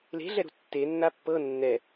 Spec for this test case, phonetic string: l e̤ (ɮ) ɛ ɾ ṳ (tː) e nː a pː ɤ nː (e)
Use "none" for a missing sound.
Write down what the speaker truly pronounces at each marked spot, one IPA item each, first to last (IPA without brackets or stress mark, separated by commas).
ɮ, tː, ɛ